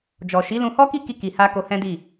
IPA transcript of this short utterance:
d͡ʒ ɔ˨ ʃ i˨˦ l ũ˧ h ɔ˦ k i˦ k i˧ k i˨ h a˧ k o˧ h ɛ̃˦ d i˦˨

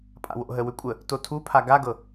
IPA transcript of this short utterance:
pʼ a̰ w o̰ ɦ ə w ʏ kʷʼ ə | t o tʰ u pʰ a ɡ a ɡ ɤ

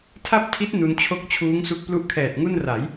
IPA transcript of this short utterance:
tʰ a˥˩ p̚ tʰ i˦˥ t̚ n u˧ n t͡ɕʰ o˥˩ k̚ t͡ɕʰ uː˦˥ ŋ s u˦˥ k̚ p l u˥˩ ʔ kʰ ɛː˨˩ t̚ ŋ u˥˩ n r a˩˦ j

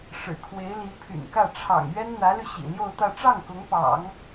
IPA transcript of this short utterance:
ʂ ɻ̩˨˩ kʰ w e˧˥ ɪ̯ l i˧˥ pʰ y̰˨˩ n k ä˥˩ ʈ͡ʂʰ ɑ̰˨˩ ŋ ɥ ɛ˥ n n̪ ä˧˥ l y˧ ɕ ḭ˨˩ l j o˥˧ ʊ̯ t̪ ä˥˧ ʈ͡ʂ ɑ˥˩ ŋ k ʊ˧˥ ŋ p ɑ̰˨˩˦ ŋ

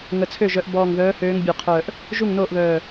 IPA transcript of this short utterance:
ŋ ə˧˩ t͡sʰ ø˥˩ ʒ œ˨˦ ʔ b ɔː˧˩ ŋ ð œː˨˦ h øː˨˦ ŋ bʲ ɔ˧˩ qʰ œː˧˩ ʔ | ʒ u˥˩ ŋ n oː˥˩ ʔ β œː˧˩

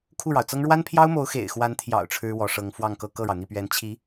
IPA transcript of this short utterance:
kʰ u˥˩ ɻ ɑ˩ ʊ̯ t͡s ɤ˥ ŋ ɻ w a˥ n pʰ j ɑ˥ ʊ̯ m o˧˥ ʊ̯ x ḛ˨˩ ɪ̯ x w a˧˥ n t̪ʰ j ɑ̰˨˩ ʊ̯ ʈ͡ʂʰ ɻ̩˥ w ɔ˧˥ ʂ ɤ˧˥ ŋ f w ɑ˥˧ ŋ k ɤ˥˧ k ɤ˥˩ ɻ ɑ˩ ʊ̯ n̪ i˥˩ p ɥ ɛ˧˥ n t͡ɕʰ i˧˥

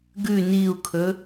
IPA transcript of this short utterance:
ɡ ʉ n i u̯ kʰ ɵ

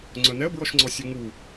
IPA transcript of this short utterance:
ŋ͡ǀ œ n ɛ ə̯ b ɹ ɔ ʃ ŋ͡ǀ ɔ sʲ ø ŋ u

